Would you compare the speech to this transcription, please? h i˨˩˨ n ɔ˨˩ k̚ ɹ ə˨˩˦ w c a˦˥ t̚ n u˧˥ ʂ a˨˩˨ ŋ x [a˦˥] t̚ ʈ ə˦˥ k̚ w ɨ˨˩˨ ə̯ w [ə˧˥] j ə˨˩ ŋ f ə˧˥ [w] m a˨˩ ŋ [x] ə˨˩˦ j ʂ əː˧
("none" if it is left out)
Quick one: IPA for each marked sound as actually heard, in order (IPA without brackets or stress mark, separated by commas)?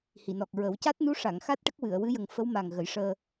a˦˥, ɨ˧˥, w, ɣ